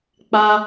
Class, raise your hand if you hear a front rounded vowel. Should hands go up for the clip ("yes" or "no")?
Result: no